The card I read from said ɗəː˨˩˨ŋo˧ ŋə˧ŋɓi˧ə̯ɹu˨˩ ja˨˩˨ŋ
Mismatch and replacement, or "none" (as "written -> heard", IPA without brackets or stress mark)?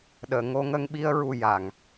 none